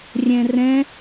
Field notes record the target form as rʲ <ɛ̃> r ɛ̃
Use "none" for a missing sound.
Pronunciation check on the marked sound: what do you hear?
ɛ̃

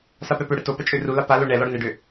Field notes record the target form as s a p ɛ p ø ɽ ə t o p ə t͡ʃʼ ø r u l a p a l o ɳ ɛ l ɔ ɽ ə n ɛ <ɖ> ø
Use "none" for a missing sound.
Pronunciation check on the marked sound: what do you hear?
ɖ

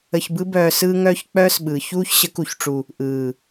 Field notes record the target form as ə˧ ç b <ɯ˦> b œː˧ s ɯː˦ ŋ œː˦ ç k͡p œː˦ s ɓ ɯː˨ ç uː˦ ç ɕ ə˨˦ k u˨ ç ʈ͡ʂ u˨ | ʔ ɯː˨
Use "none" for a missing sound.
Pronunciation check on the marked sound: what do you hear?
ɯ˦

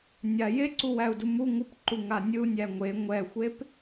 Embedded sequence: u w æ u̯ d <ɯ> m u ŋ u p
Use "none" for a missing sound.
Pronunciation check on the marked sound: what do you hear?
u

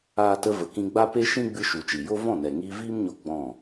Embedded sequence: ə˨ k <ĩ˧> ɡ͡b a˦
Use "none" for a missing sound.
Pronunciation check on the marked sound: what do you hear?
ĩ˧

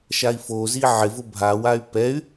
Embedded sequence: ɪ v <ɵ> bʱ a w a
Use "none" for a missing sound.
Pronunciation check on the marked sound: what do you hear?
ʊ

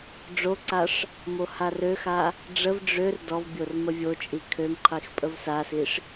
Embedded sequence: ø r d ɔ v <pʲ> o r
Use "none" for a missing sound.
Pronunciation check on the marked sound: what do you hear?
bʲ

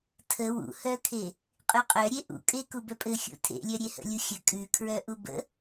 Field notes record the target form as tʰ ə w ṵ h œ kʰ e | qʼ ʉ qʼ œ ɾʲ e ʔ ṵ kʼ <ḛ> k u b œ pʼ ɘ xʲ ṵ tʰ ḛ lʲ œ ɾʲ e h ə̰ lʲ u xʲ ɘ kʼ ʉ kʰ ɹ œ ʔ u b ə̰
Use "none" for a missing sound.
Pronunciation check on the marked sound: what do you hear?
e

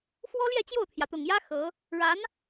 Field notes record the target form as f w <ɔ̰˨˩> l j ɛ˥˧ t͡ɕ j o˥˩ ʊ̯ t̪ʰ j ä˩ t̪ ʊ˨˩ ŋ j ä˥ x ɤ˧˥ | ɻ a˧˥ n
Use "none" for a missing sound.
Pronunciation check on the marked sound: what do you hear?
ɔ˥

